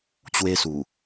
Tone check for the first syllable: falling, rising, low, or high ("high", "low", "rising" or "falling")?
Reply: high